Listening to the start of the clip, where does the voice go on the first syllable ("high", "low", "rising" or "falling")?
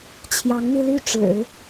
rising